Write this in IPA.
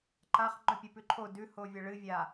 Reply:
ǃ a χ ŋ͡ǃ ɵ pʲ ɨ p ʉ ǃʰ o d ʉ h o vʲ ɐ ɭ ɨ vʲ a

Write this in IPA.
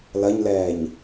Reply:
l ɐ ɲ l ɛː ɲ

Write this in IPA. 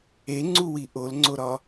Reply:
e ŋ͡ǀ u w i ʔ o l ŋ͡ǀ o ɾ ɒ

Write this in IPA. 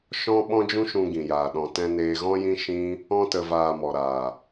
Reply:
ʃ ɔ̃˦ ɓ ɔ̃˦ d͡ʒ ũ˦ ʃ ũ˧ ɡ ĩ˨ j aː˨ ɗ ɔ̃˨ t ɛ̃˧ n eː˧ ɣ ɔ̃˦ j ĩ˦ ʃ ĩ˦ | ɔ̃˧ t ə˨ v aː˨ m ɔ˨ ɾ aː˨

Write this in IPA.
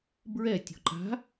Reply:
b ɹ ɛ tʲ ɔ̤ ǃ a̤

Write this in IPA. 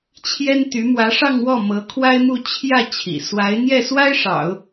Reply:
t͡ɕʰ j ɛ˥ n t̪ y˧˥ m w ä˧˥ ʂ ɑ˥˧ ŋ w ɔ˥˩ m ɤ˧˥ kʰ w a˥ ɪ̯ m u˥˧ t͡ɕʰ j ä˥˩ t͡ɕʰ ḭ˨˩ s w a˧˥ ɪ̯ n̪ j ɛ˥˩ s w a˥ ɪ̯ ʂ ɑ̰˨˩˦ ʊ̯

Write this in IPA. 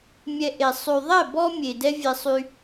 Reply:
mʲ ɛ˧ ʔ e˨ sˤ y˨ ðˤ ɛ˦˨ b ɔ˦ mʲ e˨ d ɛ˦ vʲ e˧ sˤ y˧

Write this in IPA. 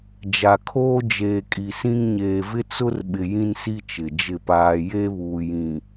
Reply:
d͡ʒ a˨ kʰ oː˦ d͡ʒ eː˨ kʼ i˨ s ĩ˦ ŋ ɲ eː˨ v ɪ˦ t͡s ʊ˦ r ɓ ɪ˨ j ĩ˦ n s i˦ t͡ʃ ɪ˨ d͡ʒ ɪ˦˨ p aː˦ j e˦ β uː˨ j ĩ˨

